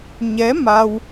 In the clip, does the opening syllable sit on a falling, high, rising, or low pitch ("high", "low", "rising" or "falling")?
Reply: rising